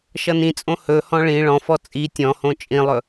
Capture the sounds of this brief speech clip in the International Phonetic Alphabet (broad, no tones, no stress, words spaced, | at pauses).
ʃʌnĩt͡sʼõ hɵhɔ̃ ɭĩ ɭɔ̃fɔ t͡sʼi tʲɔ̃hõ t͡ʃʼĩlˠɵ